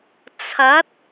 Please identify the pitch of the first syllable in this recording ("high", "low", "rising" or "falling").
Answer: rising